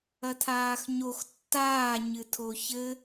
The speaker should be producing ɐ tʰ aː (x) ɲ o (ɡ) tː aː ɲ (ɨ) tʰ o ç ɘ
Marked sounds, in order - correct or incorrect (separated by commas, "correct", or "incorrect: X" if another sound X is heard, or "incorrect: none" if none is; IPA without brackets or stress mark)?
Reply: correct, incorrect: x, correct